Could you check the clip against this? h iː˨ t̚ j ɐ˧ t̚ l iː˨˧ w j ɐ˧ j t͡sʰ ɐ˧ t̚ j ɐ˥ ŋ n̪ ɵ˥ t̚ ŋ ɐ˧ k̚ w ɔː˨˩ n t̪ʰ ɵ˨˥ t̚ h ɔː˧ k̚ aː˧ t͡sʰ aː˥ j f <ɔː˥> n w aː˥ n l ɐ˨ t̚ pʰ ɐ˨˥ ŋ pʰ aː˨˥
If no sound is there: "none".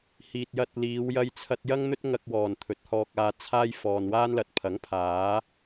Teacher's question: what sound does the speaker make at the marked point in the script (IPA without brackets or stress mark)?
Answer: ɔː˨